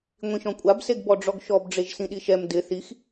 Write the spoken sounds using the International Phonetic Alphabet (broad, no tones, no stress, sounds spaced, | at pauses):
ŋʷ ĩ ʃ ɔ̃ kʷʼ a b s e ɡ b ɔ ɖ͡ʐ ɔ ɡ ʃ ɔ b ɖ͡ʐ e ʒ s ĩ ɗ i ʃ ɛ m d ɪ θ i x